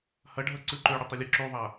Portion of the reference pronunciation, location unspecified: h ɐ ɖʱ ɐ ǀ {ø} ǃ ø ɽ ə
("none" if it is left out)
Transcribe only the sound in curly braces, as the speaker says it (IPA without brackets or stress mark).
ʉ